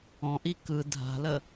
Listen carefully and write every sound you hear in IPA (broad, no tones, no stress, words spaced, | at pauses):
ɔ̃ʔi kɯ dʱa̤lə